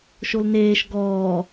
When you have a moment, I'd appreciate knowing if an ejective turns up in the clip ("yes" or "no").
no